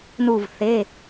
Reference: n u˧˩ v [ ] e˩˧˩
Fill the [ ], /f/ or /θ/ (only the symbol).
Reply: θ